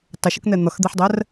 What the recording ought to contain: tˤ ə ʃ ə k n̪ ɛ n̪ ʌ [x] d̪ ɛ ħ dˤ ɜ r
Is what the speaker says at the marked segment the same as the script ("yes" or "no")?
yes